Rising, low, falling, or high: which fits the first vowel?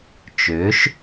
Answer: rising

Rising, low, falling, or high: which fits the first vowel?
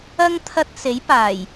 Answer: high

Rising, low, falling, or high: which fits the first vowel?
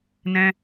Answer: high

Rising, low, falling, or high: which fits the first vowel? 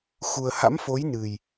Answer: low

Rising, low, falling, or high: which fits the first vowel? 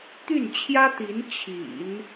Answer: falling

